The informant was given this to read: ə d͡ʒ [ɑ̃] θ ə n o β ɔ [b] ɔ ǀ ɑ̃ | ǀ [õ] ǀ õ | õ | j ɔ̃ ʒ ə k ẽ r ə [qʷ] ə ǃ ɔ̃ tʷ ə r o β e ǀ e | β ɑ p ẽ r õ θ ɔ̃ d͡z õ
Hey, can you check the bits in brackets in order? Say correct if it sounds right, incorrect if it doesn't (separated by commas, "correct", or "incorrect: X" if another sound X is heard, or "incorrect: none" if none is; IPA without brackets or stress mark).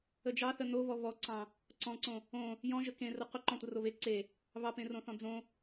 incorrect: ɑ, incorrect: β, incorrect: ɔ̃, correct